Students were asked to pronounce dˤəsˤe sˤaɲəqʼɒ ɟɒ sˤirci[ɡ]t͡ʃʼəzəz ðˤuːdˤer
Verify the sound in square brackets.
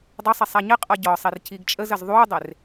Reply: correct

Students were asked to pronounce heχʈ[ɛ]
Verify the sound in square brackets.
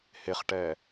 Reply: correct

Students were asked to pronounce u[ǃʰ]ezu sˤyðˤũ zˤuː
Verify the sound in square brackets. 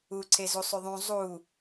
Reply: incorrect: ǀʰ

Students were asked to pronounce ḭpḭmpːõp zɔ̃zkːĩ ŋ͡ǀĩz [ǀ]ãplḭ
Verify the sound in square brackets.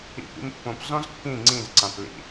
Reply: correct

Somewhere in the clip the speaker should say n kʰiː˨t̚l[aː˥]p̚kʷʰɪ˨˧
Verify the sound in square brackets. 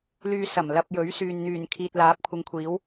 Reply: incorrect: aː˨˥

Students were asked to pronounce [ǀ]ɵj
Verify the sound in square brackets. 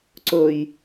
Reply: correct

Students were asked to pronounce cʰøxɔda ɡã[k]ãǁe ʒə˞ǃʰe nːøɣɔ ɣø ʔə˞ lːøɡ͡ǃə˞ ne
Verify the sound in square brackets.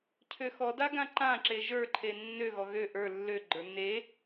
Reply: incorrect: ǃ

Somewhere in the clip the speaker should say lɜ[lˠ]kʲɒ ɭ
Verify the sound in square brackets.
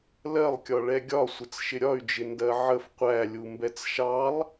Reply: correct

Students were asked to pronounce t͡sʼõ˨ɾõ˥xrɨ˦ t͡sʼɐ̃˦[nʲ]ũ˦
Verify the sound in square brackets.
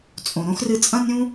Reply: correct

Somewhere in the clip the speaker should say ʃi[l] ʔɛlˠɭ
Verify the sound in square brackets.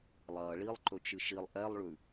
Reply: incorrect: lˠ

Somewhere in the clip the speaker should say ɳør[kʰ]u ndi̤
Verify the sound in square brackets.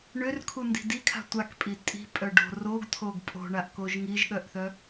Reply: correct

